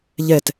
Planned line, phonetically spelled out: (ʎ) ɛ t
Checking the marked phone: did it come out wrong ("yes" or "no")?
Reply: no